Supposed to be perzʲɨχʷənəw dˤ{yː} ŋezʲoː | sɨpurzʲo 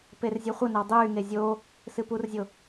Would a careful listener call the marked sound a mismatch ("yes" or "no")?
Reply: no